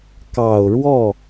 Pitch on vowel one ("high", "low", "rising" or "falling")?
low